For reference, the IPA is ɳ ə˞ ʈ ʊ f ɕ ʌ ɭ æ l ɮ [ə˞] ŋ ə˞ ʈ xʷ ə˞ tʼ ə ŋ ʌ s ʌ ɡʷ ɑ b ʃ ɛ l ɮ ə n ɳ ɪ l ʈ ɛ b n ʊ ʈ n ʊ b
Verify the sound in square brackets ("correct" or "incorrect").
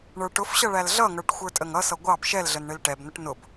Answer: incorrect